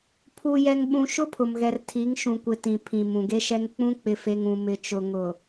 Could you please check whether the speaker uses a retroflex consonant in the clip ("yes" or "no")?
no